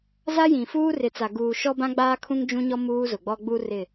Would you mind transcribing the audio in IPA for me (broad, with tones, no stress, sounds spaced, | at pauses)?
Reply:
z a˦ j ĩ˨ f uː˦ r ɪ˨ t͡s a˨ ɡ uː˨ ʃ ɔ˦ b ã˦ ɡ͡b aː˦ kʰ ũ˦ ŋ d͡ʒ ũ˦ ɲ ɔ˦ m uː˦ z ʊ˨ ɡ͡b ɔ˦ ɡ͡b u˦ r ɪ˦˨